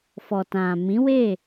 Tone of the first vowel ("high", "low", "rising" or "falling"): low